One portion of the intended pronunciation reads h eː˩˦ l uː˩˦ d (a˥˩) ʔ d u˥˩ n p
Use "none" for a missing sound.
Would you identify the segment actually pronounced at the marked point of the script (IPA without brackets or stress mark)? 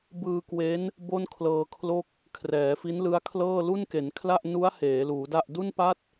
a˥˩